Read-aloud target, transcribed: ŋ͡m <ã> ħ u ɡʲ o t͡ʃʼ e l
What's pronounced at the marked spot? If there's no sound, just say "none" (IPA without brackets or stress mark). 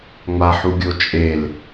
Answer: a